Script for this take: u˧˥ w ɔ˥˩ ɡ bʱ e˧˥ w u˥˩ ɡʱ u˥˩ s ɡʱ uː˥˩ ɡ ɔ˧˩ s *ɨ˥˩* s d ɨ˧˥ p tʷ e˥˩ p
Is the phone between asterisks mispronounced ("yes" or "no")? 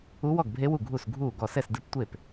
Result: yes